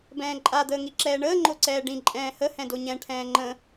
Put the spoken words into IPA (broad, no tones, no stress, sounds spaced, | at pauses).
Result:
b ɛ̃ː ǃʼ a d̪ əː ŋ i ǁ ɛː ɳ əː ŋ͡ǃ o ǀ ɛː ɖ ĩ ǃʼ ɛ̃ː h ə h ɛ̃ d o ɲ ɛ̃ ʈʰ ɛ̃ː ŋ͡ǃ ə̃